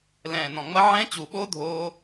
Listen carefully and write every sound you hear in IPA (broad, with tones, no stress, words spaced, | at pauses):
lɛ̃ː˨˩nɔ̃˨˩ŋ͡mɐ˦˥ ʕɛ̃˦˥t͡ɕu˨˩ɓo˦˥ dʱoː˦˥